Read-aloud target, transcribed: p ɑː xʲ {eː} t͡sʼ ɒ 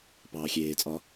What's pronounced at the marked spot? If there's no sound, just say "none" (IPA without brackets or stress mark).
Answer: eː